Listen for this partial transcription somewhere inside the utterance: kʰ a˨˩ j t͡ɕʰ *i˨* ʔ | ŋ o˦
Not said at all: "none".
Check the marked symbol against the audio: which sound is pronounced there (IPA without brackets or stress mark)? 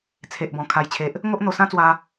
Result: e˨